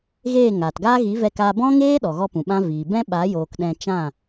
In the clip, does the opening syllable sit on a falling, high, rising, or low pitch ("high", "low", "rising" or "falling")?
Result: falling